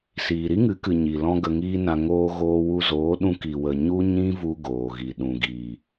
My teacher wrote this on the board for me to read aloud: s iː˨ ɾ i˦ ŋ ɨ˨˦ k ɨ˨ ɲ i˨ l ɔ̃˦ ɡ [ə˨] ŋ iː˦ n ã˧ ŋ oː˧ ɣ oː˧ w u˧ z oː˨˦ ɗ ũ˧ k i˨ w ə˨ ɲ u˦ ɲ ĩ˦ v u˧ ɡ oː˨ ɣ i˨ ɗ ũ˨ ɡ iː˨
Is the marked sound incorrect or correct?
incorrect